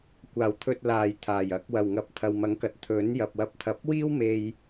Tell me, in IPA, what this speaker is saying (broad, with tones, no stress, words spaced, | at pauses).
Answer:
kʷaː˨˩wt̪ʰɵ˨t̚laː˨˩j t̪ʰaː˨˩jɐ˨˥k̚ wɐ˨˩wŋɐ˨p̚t̪ʰɐ˨w mɐ˨˥ŋkɐ˨˥t̚ t̪ʰɵ˨˥n jɐ˨p̚ wɐ˨˥p̚t̪ʰɐ˨p̚ wiː˥wme˧j